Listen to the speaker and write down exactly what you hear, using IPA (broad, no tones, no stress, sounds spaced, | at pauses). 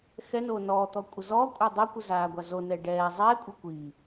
x ɛ n oː n ɔː t̪ ɔ kʷʼ ə z ɔː kʷʼ ɛ dˤ o kʷ ɨ z aː ɡʷ a z o n ɛ ɖ ɛː zˤ ɛː kʷʼ ɨ kʷ iː